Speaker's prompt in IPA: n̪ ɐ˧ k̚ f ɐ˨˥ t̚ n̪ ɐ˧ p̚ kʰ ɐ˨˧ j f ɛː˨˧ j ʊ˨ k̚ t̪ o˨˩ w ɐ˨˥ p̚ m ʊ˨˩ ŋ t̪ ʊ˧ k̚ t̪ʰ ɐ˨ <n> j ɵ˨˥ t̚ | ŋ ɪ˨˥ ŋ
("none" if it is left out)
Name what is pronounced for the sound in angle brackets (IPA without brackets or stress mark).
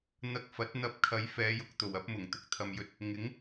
m